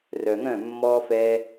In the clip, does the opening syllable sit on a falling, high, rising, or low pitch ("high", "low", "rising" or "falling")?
low